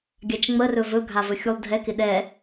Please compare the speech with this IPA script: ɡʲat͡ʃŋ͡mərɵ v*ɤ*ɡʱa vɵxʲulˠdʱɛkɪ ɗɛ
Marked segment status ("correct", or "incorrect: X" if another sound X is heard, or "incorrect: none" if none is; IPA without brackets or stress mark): incorrect: ɵ